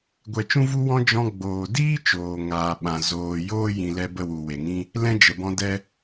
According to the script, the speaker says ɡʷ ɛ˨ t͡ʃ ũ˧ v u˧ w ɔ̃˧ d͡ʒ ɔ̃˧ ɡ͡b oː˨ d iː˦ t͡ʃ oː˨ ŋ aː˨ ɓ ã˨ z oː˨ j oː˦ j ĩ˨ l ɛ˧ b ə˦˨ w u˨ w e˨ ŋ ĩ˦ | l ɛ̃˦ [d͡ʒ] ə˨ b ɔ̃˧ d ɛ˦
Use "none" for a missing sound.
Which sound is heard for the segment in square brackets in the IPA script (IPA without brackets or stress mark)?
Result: d͡ʒ